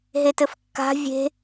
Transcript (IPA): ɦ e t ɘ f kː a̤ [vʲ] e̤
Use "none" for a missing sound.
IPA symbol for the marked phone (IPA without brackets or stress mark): vʲ